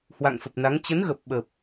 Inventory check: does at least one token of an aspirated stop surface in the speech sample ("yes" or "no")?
no